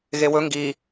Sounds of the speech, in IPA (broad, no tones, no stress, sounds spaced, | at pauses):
ɣ e w ɵ ŋ ɡ i